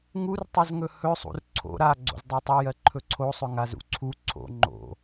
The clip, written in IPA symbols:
ŋ u r tˤ ɵ z ŋ ɵ h ɵ sˤ ṵ r ǀʰ o̰ ɾ a ɡ͡ǀ o̰ z dˤ ɜ tˤ ɵ j ɜ ǃʰ ɵ ǀʰ o sˤ ɵ ŋ a z ṵ ǀʰ u ǀʰ o̰ ŋ͡ǃ o̰

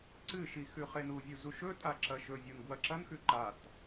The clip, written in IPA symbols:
ǀ ɨ ʃ i x ʉ χ e n u vʲ u z u ʃ ɵ tʼ a ǁ ɐ ʃ ɵ vʲ o n ɡ w ɐ ǁ ɐ n x ʉ ǃ a t

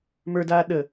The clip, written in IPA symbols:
m ə˞ d aː ɗ ə

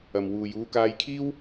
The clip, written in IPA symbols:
ɐ˨ m w uː˨ j uː˧ k aː˧ j kʰ iː˥ w

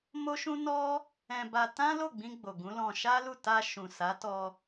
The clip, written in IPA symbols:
m o˦ ʃ ũ˦ n ɔ˦ | ɛ̃˧ b a˧ t ã˦ l o˦˨ ɡ͡b ĩ˧ ɡ͡b o˨ ɡ ũ˨˦ l ɔ̃˧ ʃ a˦ l u˦˨ t a˧ ʃ ũ˨ s a˨˦ t ɔ˧

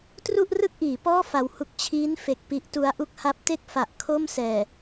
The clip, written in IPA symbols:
t r u˥˩ ʔ r ɯ˥˩ k̚ ʔ iː˩˦ p ɔː˥˩ f a˧ w h u˦˥ k̚ t͡ɕʰ iː˦˥ n f e˨˩ k̚ p i˦˥ ʔ t u˦˥ a̯ ʔ u˦˥ k̚ h a˦˥ p̚ t e˥˩ k̚ f a˨˩ ʔ kʰ o˥˩ m s ɛː˨˩

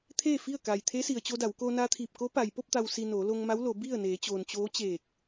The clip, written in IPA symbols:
t̪ʰ eː˥˨ f i˥˨ ə̯ k a˩ j t̪ʰ e˧˥ s i˩ ə̯ t͡ɕ o˧ d a˩˧ w k o˧ n a˧ t̪ʰ iː˧˩ p̚ k o˧˥ p a˩ j p o˥˨ p̚ t̪ a˩ w s i˩ n oː˩˧ l o˧ ŋ m a˧˥ w l o˩˧ b i˥˨ ə̯ n eː˩˧ t͡ɕ oː˩ n t͡ɕ oː˧˥ t͡ɕ eː˧˩ k̚

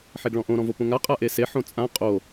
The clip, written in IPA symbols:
ħ e ɡ ɭ ɔ̃ ʔ õ ɾ ɔ̃ v o p õ ŋ a qʼ a ʔ e s e ħ õ t͡sʼ ã qʼ o

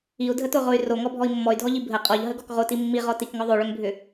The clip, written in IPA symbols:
i u̯ dʱ ə t o ʁ o y̯ r o ŋ ɔ bʱ ɔ i̯ mː ɔ y̯ dʱ ɔ ʎ i bʱ ə qʼ ɔ ʎ ɦ ə ɡ ɔ k ʁ o t i mː i ʁ ɔ t i k ŋ ɔ ðˤ o ɭ ʏ ŋ bʱ ʏ

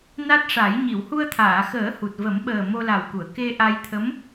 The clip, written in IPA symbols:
n a˦˥ t̚ ʂ a˨˩˦ j ɲ i˨˩˨ w h u˧ ə̯ t̪ʰ aː˨˩˨ x əː˨˩˦ h u˨˩ t̚ v ə˨˩˦ m ɓ əː˨˩ m o˧ l a˨˩ w k u˨˩˨ ə̯ k e˧ ʔ a˧ j t̪ʰ ə˧˥ m

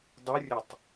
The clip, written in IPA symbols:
dˤ ɯ rʲ ə tˤ

